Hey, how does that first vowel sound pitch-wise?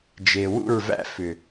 low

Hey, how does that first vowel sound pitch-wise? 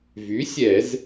rising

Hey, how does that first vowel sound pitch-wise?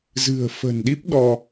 low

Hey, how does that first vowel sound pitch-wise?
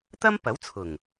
high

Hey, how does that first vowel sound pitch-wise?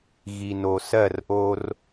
low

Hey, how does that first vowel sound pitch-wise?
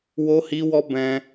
high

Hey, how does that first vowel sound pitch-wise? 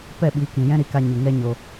falling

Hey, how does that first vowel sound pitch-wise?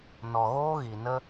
low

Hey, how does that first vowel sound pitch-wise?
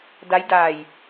rising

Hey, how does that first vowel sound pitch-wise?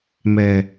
low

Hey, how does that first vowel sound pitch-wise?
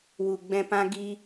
low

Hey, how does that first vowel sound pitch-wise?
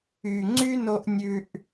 low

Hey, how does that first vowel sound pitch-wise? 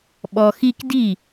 low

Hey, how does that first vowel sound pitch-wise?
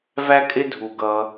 high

